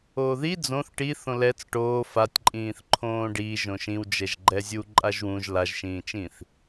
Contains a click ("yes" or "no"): yes